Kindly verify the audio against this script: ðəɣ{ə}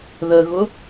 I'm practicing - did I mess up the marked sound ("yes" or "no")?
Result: yes